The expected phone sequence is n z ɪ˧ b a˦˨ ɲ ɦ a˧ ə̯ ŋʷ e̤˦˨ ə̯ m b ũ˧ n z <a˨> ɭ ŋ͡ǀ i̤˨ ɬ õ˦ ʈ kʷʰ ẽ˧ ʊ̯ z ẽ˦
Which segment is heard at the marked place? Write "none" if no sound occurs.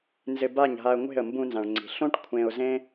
ã˨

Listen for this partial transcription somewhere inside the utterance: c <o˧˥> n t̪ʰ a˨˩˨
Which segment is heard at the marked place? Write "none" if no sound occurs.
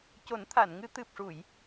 o˨˩˦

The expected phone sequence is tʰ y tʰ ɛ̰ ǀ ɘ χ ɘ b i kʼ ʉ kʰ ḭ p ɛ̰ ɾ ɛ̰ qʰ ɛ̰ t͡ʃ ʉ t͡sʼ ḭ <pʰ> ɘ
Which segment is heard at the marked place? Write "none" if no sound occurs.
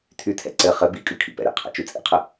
qʰ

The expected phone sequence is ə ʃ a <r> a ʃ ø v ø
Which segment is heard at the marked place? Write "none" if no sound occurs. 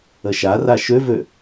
r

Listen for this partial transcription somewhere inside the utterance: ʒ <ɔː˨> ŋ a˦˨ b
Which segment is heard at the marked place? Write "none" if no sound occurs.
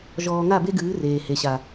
ɔː˨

